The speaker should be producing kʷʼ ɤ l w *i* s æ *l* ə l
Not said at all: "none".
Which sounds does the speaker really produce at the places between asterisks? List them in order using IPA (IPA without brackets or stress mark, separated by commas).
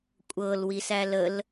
i, l